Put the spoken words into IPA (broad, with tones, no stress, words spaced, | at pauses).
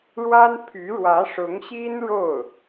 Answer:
ɻwa˥n pʰy˧˥ɻwä˧˥ʂʊ˧˥ŋɕi˥n ɻo˥˩ʊ̯